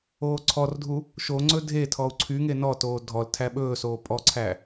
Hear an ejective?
yes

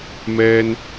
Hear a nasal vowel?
no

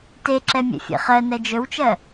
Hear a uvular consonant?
yes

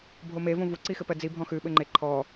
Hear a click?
yes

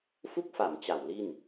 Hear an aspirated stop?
no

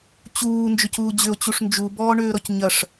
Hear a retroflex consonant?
yes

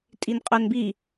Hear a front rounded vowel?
yes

